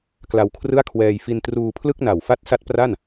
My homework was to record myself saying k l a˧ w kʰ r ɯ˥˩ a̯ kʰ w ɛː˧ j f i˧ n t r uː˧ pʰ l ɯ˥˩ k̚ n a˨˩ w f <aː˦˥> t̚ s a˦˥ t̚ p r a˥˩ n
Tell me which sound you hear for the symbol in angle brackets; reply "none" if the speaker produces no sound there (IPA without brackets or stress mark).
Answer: a˦˥